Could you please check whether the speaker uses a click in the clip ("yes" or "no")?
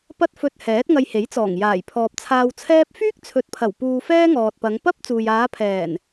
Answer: no